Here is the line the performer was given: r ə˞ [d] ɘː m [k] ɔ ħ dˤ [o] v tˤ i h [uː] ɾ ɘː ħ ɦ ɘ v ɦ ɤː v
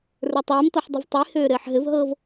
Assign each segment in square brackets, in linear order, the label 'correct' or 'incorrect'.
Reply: incorrect, incorrect, incorrect, incorrect

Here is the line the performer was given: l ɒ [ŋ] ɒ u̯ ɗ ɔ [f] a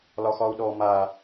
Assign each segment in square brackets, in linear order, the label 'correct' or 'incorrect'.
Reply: incorrect, incorrect

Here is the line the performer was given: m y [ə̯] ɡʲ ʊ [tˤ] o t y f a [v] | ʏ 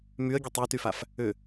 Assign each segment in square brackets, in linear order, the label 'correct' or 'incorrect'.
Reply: correct, correct, incorrect

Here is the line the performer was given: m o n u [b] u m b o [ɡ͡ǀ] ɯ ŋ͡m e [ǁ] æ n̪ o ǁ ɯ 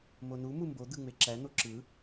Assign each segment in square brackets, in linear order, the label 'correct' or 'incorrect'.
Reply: incorrect, incorrect, correct

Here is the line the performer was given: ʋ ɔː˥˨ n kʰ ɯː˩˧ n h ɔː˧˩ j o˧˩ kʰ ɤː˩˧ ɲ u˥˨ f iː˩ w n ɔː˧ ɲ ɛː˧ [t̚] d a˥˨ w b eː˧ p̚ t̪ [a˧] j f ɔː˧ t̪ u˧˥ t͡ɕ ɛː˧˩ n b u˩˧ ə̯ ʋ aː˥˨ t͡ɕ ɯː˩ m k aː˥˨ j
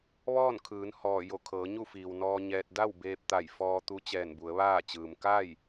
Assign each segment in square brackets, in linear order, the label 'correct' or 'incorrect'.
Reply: correct, incorrect

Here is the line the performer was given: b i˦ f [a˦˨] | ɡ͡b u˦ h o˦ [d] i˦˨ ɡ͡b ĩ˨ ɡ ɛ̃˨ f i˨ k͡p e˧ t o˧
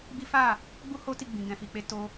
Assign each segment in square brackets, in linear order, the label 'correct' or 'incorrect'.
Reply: correct, incorrect

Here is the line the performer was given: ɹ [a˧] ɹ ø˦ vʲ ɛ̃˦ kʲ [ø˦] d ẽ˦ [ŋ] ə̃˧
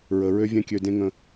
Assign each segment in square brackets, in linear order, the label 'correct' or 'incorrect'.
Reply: incorrect, incorrect, correct

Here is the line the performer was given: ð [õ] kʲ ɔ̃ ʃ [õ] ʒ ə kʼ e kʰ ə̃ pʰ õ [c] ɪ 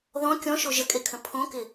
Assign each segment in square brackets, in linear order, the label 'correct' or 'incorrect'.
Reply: incorrect, incorrect, incorrect

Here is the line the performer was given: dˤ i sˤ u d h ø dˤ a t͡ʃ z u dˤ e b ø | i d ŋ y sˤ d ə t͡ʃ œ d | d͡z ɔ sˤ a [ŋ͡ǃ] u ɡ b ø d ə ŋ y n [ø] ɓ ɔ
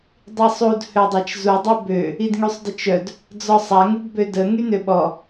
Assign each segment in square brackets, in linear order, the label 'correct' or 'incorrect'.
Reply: incorrect, correct

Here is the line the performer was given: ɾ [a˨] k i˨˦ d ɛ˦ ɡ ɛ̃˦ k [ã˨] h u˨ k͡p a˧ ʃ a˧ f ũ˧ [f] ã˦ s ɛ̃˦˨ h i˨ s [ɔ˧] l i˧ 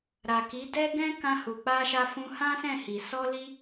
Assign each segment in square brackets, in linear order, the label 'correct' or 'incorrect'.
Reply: correct, incorrect, incorrect, correct

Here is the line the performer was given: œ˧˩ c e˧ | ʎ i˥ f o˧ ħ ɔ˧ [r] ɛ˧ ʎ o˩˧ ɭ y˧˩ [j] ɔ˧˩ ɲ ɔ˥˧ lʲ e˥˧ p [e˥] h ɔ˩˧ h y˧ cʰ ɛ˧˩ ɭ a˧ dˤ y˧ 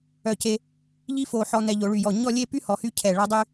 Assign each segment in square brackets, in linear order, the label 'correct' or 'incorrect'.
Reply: incorrect, correct, incorrect

